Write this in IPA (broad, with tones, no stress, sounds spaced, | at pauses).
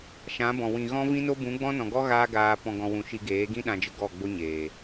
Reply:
ʃ ã˨˦ b ɔ̃˨ w ĩ˨ ɣ ɔ̃˦ v ĩ˦ n o˦ b ũ˨˦ ɡ͡b ɔ̃˦ n ɔ̃˨ ɡ ɔ˦ ɣ aː˦ ɡ aː˧ p ɔ̃˧ ɡ ɔ̃˧ w ũ˨ ʃ i˧ ɡ eː˨˦ ɡ ĩ˦ ɗ ã˧ d͡ʒ ə˧ ɡ ɔ˦˨ ɡ͡b o˦ ɲ eː˨